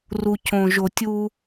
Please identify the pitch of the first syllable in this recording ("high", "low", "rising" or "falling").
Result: low